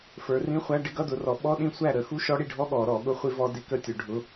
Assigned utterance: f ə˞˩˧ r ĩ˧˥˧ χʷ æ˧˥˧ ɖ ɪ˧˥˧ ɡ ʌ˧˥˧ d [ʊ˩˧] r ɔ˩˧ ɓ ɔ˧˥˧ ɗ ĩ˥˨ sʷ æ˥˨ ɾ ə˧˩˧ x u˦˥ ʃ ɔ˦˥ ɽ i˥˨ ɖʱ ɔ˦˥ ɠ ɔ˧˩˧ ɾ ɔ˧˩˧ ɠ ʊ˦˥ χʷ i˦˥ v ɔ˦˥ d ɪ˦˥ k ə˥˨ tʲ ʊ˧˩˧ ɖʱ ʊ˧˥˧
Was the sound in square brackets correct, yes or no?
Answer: yes